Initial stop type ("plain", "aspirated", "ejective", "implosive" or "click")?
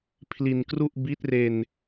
aspirated